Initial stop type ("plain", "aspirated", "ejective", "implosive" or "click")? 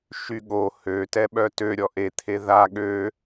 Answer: implosive